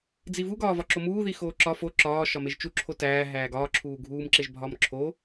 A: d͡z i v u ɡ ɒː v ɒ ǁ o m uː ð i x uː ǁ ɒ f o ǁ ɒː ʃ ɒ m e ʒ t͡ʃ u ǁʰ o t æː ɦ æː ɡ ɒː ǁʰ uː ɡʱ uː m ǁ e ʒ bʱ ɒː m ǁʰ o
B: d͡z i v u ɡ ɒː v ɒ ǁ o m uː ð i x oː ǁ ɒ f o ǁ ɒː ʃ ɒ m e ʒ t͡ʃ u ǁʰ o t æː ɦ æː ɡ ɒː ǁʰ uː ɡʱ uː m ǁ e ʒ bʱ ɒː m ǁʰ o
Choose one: B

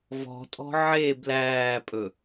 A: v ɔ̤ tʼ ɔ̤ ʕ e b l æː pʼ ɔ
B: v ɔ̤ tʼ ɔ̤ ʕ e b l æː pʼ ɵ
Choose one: B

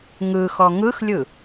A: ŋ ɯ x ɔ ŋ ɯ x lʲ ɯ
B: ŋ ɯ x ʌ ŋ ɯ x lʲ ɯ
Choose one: A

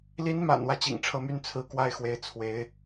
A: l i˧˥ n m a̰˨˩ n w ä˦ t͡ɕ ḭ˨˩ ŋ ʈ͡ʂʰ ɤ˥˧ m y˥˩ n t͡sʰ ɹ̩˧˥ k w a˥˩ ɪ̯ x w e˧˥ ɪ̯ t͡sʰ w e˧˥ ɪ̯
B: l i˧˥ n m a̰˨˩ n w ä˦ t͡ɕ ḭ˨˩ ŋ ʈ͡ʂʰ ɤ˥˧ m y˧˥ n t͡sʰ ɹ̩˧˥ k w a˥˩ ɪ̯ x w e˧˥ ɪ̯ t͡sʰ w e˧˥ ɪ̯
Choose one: A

